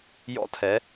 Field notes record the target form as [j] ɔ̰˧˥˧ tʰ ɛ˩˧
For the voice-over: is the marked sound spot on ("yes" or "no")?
yes